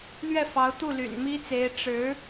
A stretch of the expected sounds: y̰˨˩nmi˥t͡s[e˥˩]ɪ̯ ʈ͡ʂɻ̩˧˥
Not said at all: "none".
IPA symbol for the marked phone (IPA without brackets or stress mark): e˧˥